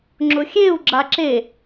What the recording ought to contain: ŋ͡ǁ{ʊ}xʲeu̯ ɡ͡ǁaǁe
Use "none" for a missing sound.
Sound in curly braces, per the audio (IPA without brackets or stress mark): ʊ